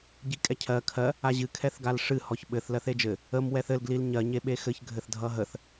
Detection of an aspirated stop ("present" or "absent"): present